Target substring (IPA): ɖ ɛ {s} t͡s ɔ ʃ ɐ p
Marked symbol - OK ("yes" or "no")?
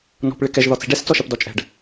yes